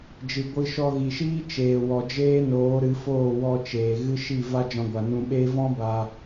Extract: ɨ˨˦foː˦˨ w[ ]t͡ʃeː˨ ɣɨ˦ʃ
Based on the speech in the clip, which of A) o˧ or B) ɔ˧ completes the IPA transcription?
B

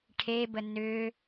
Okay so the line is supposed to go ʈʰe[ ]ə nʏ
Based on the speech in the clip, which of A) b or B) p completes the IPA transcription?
A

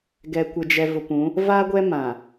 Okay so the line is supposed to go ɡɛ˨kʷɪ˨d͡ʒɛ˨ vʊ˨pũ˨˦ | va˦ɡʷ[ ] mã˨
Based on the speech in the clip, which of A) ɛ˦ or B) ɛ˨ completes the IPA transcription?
A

